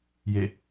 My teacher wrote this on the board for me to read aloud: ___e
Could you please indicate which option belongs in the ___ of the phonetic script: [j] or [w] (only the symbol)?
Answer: j